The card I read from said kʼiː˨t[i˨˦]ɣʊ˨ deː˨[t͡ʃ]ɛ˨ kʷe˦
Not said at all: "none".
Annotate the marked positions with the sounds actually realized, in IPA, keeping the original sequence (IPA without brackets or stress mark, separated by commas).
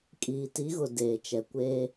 i˨˦, t͡ʃ